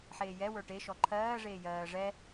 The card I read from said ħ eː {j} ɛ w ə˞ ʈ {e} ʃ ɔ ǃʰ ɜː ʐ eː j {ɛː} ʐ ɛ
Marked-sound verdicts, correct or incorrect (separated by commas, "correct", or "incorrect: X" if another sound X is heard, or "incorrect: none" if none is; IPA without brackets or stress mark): correct, correct, incorrect: ɜː